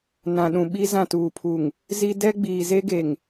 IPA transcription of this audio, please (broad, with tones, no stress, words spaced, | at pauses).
nã˨ɗũ˨ɓi˦ zã˦˨tuː˨pʰu˨ŋ | zi˦ dɛ˦ɡ͡biː˨ze˦ɡe˨ŋ